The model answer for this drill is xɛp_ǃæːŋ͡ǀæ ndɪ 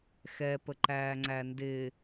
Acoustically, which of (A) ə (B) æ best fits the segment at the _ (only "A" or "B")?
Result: A